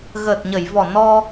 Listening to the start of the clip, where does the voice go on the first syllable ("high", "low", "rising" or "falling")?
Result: low